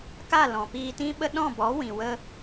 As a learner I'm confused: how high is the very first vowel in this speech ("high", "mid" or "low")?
low